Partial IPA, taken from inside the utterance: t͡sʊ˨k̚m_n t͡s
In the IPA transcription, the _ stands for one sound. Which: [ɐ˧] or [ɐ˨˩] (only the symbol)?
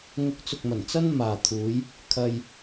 ɐ˨˩